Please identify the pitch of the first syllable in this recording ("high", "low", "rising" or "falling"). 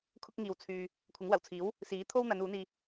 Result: high